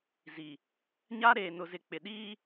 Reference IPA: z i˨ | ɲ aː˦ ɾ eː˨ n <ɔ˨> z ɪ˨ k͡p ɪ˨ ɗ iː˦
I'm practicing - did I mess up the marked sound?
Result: yes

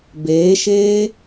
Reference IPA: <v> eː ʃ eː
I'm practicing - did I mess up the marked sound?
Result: yes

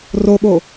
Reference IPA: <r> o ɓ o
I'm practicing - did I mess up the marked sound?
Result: no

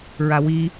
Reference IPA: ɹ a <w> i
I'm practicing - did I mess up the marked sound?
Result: no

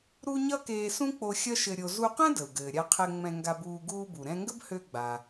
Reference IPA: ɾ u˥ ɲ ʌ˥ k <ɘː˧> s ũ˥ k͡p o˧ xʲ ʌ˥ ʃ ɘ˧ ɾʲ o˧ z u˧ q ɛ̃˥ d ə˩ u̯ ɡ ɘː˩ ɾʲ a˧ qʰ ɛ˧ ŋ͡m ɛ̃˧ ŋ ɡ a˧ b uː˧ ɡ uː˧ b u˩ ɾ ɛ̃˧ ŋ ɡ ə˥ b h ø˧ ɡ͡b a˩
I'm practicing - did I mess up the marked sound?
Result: yes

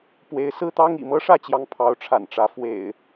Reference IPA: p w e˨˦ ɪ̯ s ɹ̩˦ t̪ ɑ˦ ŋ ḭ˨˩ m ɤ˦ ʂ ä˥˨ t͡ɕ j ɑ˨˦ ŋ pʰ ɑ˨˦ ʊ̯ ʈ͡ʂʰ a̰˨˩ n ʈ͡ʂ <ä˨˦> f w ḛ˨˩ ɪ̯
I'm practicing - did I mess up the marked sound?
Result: no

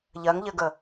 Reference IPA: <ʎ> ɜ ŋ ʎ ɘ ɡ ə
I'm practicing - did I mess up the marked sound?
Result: no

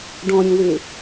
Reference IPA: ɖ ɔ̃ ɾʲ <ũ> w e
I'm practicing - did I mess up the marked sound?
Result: no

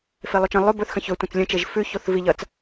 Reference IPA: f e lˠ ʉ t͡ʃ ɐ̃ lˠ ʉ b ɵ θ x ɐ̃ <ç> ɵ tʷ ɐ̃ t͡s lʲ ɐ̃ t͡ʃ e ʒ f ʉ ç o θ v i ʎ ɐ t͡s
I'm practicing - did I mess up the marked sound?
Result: no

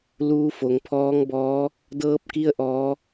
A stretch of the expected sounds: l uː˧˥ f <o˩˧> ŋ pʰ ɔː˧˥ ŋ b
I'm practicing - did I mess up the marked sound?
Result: no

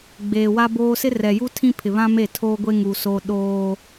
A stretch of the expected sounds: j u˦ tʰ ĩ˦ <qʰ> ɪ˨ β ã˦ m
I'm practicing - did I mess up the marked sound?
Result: yes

